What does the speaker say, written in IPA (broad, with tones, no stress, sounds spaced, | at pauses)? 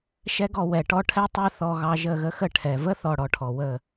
ʃ ɛ˦ ɡ ɔ˧ w ɛ˨ ʈ ɔ˦ ʈʰ ɛ˦ tˤ ɛ˦ θ ɔ˧ ɣ ɑ˧ ʒ ə˦˨ ɣ ə˦ x ə˦˨ ʈʰ ɛ˨ v ə˦ θ ɔ˨ ɽ ɔ˧ ʈʰ ɔ˨ w ə˦˨